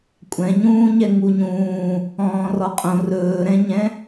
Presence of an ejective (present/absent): present